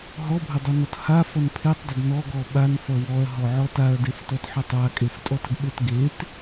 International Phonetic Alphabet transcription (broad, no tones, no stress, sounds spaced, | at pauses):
ɦ ɔ bʱ ə dˤ ʌ n ɔ t h a f ʌ n pʰ e tˤ dˤ ə d n ɔ ɡ ɔ ɓ a n f ʌ w ɔ ɐ̯ ɦ ɔ ʕ ɔ t a ɐ̯ d e f t ɔ t ħ ʌ tˤ a kʼ e f tʼ ɔ t ə ɡ ɓ e t ɡ e t